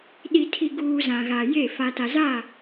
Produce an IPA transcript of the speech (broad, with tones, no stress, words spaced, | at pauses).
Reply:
ɗi˨tʰi˨ɡuː˨ zã˨ɣa˨je˦˨ fa˨ta˨za˦˨